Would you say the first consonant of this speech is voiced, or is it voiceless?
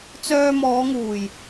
voiceless